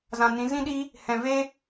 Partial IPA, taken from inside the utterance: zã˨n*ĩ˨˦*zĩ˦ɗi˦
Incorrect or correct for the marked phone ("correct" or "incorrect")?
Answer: correct